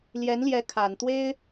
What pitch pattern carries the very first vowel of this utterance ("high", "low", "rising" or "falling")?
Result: rising